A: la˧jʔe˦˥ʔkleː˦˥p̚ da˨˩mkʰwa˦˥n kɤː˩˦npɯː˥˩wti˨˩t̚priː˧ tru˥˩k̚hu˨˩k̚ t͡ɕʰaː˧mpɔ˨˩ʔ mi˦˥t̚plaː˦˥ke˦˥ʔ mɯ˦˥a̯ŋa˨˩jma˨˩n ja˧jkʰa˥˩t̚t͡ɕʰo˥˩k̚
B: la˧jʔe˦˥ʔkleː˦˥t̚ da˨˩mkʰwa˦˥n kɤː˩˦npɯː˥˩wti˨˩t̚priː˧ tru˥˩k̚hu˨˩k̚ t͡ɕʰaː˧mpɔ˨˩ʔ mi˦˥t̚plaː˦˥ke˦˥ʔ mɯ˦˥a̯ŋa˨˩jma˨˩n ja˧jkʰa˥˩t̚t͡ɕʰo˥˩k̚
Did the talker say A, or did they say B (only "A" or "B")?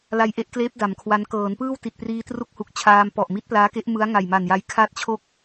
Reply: A